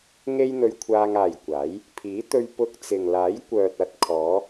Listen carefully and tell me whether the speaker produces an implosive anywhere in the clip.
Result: no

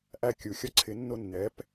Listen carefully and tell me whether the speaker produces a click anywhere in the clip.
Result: yes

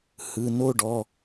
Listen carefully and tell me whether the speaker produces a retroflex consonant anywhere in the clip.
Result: yes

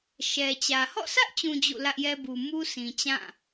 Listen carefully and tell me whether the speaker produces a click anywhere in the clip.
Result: no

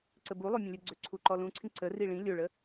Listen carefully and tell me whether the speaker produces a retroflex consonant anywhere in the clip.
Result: yes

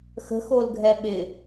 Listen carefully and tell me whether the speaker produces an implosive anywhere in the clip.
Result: yes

